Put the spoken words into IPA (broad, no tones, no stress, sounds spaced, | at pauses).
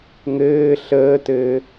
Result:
ŋ ɘː ɬ əː t ɘː